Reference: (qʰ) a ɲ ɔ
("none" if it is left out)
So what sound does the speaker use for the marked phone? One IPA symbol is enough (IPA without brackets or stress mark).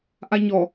ʔ